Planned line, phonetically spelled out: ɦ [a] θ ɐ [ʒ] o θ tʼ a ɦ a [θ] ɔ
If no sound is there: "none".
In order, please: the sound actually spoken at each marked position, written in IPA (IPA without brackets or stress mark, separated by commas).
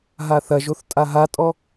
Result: a, ʒ, tʼ